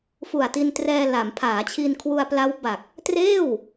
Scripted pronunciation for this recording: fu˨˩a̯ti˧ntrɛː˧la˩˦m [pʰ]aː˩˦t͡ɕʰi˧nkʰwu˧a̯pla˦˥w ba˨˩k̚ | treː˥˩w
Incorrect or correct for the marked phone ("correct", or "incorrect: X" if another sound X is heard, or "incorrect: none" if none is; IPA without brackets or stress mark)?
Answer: correct